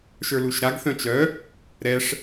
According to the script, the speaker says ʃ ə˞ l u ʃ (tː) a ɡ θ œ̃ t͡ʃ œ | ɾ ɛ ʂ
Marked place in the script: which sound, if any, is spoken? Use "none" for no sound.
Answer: ɾ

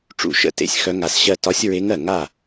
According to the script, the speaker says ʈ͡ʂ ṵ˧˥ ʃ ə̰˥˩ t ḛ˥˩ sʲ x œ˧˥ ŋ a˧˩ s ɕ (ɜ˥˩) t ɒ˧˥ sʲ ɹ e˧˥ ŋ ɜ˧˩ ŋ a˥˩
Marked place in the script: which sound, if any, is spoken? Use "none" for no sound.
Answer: ɜ˥˩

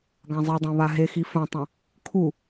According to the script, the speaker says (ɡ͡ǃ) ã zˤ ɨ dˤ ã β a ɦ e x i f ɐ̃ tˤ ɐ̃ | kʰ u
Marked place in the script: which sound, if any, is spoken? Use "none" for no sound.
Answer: ɡ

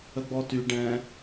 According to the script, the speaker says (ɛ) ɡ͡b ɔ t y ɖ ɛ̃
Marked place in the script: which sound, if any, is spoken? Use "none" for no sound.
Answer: ə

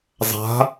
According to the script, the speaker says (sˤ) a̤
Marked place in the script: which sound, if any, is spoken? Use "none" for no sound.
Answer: zˤ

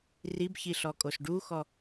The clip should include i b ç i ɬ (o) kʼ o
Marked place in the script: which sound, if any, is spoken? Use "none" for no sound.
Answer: ɔ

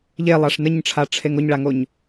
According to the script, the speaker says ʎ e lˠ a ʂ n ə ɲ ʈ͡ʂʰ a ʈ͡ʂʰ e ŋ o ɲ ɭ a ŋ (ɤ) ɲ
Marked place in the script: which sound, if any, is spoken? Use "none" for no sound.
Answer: o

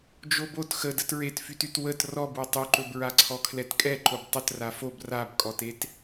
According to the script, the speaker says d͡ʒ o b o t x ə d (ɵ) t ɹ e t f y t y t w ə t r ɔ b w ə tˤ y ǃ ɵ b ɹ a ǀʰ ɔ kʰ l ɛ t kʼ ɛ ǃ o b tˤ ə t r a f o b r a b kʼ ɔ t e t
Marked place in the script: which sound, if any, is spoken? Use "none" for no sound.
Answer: ə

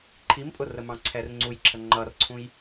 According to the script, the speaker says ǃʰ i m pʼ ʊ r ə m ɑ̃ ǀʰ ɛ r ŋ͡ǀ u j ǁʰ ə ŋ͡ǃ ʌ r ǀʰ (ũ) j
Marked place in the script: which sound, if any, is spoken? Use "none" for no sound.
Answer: ũ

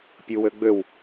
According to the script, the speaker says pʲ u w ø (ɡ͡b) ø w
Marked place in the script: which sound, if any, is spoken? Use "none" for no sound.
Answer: ɡ͡b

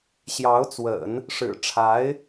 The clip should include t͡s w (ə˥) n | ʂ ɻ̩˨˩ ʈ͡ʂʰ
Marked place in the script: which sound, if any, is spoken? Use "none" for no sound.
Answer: ə̰˨˩˦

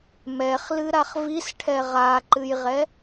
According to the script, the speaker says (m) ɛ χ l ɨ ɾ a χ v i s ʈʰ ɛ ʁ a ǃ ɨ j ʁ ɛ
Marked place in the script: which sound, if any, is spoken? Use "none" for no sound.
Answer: m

